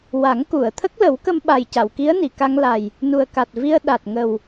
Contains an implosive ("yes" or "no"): yes